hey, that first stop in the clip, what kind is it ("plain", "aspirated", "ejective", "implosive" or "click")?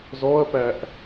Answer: plain